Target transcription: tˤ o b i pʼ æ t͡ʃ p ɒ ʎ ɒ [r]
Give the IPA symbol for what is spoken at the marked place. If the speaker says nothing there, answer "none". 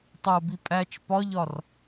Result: r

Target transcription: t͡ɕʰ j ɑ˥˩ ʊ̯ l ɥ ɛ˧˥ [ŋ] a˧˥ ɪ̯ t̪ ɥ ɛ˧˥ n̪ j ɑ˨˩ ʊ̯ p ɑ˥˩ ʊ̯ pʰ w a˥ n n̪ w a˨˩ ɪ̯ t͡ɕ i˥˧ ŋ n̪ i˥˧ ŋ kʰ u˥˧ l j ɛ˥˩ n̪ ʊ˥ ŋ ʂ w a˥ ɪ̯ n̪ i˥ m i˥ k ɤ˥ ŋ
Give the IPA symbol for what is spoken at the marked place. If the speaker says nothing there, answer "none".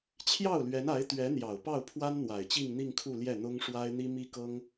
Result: n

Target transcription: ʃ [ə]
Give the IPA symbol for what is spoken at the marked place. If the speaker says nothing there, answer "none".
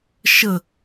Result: ə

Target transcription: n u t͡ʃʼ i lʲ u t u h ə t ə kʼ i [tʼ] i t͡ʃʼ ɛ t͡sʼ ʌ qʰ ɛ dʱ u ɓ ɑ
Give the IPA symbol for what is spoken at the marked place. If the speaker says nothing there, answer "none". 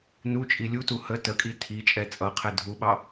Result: tʰ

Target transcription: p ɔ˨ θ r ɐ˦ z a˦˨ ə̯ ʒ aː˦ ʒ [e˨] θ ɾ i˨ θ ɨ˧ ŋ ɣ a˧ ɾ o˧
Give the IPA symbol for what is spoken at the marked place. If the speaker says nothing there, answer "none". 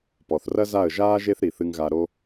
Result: e˦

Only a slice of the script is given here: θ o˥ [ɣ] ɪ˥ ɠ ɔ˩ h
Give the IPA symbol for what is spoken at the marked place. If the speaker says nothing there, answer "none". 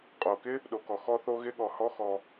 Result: ɣ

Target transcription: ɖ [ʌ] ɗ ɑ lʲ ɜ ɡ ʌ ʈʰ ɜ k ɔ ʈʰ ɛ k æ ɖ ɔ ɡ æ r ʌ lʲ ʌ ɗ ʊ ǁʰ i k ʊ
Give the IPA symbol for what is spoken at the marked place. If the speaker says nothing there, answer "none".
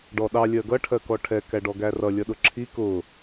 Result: ɔ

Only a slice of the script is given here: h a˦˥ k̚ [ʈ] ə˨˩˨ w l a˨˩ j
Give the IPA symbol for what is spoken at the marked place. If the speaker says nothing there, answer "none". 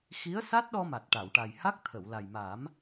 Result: t̪ʰ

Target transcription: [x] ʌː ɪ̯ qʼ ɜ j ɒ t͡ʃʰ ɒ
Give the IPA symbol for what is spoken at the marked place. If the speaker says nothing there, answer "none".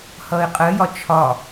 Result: h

